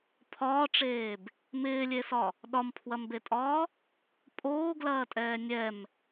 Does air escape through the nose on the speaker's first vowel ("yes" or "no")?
no